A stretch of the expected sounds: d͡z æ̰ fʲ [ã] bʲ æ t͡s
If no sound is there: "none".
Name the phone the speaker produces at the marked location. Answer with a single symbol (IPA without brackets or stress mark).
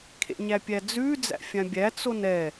ã